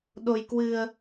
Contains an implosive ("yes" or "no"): yes